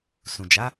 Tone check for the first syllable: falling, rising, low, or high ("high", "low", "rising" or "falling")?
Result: low